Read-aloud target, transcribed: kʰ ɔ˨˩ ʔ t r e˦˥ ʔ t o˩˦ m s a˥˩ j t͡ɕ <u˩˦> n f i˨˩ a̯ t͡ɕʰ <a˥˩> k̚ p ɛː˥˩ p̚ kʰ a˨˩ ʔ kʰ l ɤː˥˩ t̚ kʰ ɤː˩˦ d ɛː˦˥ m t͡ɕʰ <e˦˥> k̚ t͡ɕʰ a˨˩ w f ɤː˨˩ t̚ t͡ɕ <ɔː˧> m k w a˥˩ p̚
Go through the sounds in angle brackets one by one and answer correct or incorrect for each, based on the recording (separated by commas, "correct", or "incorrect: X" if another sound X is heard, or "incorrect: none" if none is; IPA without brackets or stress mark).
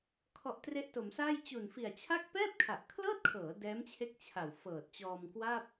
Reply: incorrect: u˨˩, correct, correct, correct